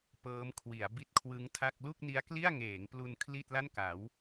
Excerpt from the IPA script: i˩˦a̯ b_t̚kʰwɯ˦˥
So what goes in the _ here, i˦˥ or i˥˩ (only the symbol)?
i˥˩